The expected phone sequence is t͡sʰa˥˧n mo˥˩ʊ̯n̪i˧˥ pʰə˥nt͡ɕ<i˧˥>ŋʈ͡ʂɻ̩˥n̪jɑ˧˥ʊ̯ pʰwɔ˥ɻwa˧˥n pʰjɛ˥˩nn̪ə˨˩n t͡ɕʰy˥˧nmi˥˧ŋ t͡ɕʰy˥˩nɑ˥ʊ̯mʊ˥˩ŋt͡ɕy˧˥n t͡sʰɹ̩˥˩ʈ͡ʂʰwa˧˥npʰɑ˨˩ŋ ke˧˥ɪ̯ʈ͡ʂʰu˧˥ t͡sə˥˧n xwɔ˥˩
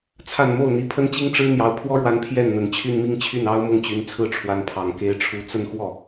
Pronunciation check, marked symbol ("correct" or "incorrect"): incorrect